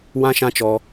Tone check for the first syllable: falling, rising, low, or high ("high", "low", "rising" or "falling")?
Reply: high